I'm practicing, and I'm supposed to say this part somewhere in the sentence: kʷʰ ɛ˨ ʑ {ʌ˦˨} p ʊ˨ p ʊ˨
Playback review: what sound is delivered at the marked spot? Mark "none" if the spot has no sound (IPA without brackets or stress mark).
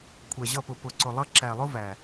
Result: ʌ˦˨